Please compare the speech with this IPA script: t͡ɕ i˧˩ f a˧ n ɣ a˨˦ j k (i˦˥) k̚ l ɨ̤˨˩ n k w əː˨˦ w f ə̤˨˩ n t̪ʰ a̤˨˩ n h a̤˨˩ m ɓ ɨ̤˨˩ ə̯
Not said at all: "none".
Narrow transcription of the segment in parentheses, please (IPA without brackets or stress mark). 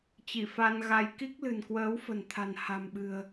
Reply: i˦˥